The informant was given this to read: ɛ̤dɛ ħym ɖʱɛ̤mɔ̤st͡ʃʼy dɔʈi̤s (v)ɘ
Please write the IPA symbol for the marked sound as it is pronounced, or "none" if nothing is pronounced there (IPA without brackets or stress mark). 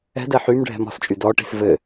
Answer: v